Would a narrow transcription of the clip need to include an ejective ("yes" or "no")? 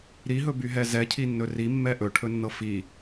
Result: no